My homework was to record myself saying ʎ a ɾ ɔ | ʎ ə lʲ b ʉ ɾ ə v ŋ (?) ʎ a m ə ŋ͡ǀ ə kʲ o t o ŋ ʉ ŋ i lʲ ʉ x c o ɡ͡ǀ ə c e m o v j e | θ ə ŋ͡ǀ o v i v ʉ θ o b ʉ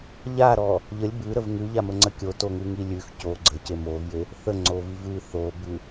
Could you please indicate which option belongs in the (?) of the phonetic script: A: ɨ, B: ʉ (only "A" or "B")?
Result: B